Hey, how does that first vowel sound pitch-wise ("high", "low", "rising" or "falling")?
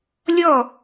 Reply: falling